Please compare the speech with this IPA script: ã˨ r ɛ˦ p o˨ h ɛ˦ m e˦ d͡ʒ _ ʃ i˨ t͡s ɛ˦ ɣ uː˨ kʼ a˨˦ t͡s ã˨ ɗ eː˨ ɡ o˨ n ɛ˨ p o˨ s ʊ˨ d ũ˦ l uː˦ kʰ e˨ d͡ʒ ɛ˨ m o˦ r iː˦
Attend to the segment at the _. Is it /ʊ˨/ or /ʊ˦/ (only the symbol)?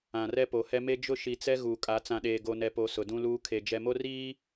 ʊ˦